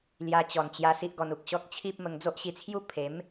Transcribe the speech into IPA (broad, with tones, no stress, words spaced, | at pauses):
lja˧t͡ɕɔ˨˩nt͡ɕja˧ si˦ʔɡɔ˧nu˨k̚ɕɔ˦k̚ t͡ɕʰi˦p̚mə˧ŋ d͡zo˦ʔɕi˧t͡sʰju˦ pʰe˨˦m